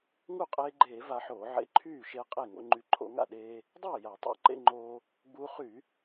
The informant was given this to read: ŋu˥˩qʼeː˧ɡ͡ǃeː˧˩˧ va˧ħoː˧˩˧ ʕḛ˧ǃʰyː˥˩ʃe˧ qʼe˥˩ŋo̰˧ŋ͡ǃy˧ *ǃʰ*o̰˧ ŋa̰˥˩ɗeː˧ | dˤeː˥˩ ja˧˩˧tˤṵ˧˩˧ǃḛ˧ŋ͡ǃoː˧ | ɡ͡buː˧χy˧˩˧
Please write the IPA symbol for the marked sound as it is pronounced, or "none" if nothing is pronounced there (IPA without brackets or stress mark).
ǃʰ